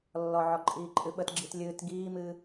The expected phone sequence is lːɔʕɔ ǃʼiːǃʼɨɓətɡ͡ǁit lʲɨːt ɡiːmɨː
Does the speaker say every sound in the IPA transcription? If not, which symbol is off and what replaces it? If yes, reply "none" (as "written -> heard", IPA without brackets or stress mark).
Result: none